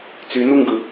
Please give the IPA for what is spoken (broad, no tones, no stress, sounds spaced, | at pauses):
t͡s y n u ŋ ɡ ɯ